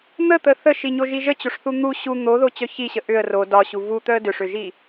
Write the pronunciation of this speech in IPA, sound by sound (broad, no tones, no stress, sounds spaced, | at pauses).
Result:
n̪ ə t̪ ə θ ə ʃ i ɲ o ʒ i ʒ ə t͡ɕ o ʂ θ u n̪ u ɕ u n̪ o ð o t͡ɕ œ ç i ɕ ə ʔ ʏ ə̯ r o d ɒ ɕ u v u t̪ œ ə̯ d ʏ ʂ ʏ ʒ i